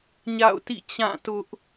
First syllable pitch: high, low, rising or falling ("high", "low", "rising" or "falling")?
falling